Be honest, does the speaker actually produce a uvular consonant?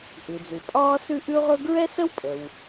yes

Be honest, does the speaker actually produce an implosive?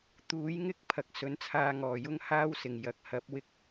no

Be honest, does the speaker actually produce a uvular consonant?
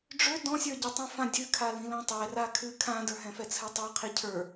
yes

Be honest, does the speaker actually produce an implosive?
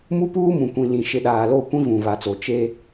yes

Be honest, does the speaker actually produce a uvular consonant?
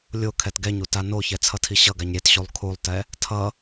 no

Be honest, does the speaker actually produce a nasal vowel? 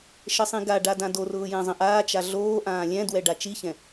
yes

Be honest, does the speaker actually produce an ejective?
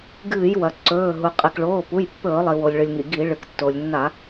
yes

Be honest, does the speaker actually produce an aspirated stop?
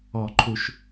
yes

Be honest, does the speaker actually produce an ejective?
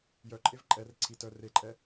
yes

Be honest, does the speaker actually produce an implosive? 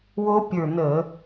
no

